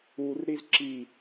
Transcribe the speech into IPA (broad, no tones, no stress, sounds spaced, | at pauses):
u r ɾ i z ǁ i